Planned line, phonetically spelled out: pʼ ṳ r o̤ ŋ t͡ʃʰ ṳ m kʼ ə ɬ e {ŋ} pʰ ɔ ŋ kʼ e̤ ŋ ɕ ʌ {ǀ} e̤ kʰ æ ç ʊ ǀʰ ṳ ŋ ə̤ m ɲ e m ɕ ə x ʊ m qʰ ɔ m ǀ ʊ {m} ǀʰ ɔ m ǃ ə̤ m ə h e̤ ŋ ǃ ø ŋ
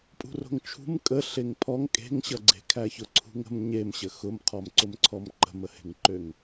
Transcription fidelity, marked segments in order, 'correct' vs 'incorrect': correct, incorrect: ɡ͡ǀ, correct

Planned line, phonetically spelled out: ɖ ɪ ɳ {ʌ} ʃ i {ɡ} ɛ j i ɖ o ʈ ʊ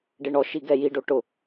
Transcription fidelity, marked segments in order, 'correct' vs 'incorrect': incorrect: ɔ, correct

